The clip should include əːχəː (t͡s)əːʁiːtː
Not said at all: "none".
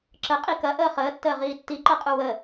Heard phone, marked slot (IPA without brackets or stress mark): tː